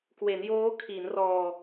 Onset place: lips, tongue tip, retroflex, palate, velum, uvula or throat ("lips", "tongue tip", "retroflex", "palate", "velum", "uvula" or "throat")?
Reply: velum